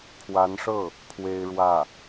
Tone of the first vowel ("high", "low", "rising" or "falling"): rising